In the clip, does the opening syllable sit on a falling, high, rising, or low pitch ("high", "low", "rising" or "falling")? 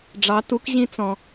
rising